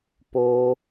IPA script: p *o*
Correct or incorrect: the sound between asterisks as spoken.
correct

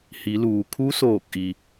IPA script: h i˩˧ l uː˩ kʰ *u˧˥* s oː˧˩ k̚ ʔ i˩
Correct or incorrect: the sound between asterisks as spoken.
correct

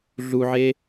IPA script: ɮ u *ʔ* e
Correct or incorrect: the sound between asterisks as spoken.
incorrect: ʕ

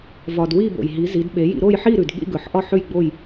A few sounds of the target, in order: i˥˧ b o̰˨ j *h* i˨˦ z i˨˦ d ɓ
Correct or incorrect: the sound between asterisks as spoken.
incorrect: ɦ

